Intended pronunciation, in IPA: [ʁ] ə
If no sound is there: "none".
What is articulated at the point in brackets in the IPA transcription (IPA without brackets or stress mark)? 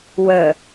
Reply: w